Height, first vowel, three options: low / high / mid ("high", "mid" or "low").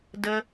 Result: mid